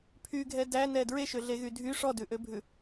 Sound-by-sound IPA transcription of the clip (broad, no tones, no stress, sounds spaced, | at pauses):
pʰ y ɡʱ ɛ d æ n ɛ d ɹ e ʃ ø ɮ e ɣ y dʱ y ʂ ɔ d ʉ ʔ ø bʱ ʉ